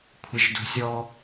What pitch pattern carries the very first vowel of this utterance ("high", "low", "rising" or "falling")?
low